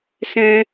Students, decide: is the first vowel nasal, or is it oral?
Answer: nasal